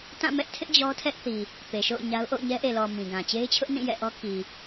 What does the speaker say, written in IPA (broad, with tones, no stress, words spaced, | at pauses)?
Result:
tã˦˨mɛ˦ʔtʰɪ˦ʔ d͡ʑɔ˦tʰɛ˦ʔθi˨ | pe˨ʃo̰˦˨ʊ̯ ɲa˦ʊ̯ ʔo̰˦˨ʊ̯ɲɛ˦ʔe˨lɔ˨ mĩ˨ɡã˨ t͡ɕe˦ɪ̯t͡ɕʰʊ˦ʔ nĩ˦˨ jɛ̰˦˨ʔɔ˦ ki˨